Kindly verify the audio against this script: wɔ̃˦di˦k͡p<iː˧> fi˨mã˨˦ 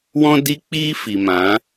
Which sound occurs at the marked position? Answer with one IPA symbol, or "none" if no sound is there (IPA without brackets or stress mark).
iː˦